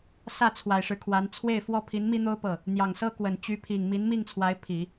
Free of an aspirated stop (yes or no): no